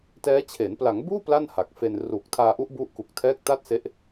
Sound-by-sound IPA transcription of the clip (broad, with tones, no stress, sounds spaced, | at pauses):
t ɛː˦˥ t͡ɕʰ e˩˦ n p l a˩˦ ŋ b uː˥˩ p l a˥˩ n h a˨˩ k̚ f e˧ n r uː˨˩ k̚ tʰ aː˧ ʔ u˦˥ ʔ b u˦˥ ʔ k u˨˩ k̚ tʰ ɛː˦˥ k̚ t a˥˩ t̚ s e˦˥ ʔ